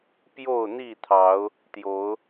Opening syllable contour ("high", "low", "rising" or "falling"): falling